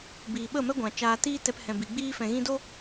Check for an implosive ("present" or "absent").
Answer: present